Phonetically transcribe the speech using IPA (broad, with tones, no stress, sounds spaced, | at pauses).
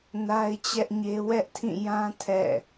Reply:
n a˦ ɪ̯ t͡ɕ ɛ˦ ʔ ɲ e˦ w ɛ˦ ʔ tʰ ĩ˦˨ j ã˦ tʰ ɛ̰˦˨